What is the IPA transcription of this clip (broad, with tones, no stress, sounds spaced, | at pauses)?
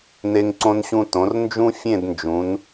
n e˧ ŋ ǀ õ˧ n ɕ ũ˧ t õ˩˧ r n d͡ʒ ũ˥ fʲ ẽ˥˧ d n d͡ʒ ũ˩˧ n